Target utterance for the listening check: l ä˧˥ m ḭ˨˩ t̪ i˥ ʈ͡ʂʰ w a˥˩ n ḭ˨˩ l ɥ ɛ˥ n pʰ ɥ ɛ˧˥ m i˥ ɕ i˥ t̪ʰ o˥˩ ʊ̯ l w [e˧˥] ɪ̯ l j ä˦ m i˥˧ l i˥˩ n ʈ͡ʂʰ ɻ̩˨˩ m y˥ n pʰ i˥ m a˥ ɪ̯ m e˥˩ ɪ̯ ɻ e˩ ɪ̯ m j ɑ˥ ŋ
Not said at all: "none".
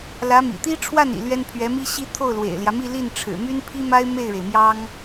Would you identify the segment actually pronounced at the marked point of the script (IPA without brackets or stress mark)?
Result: ḛ˨˩